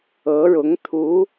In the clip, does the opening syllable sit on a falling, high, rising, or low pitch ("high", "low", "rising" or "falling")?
rising